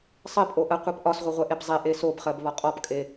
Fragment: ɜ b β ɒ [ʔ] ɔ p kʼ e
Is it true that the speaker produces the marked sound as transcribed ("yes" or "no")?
no